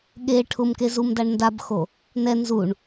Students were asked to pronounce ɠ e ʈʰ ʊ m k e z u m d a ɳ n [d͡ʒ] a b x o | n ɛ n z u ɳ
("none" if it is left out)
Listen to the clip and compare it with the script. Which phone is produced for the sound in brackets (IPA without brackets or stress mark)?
d